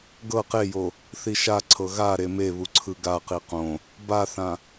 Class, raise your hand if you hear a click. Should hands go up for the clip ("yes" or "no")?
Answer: yes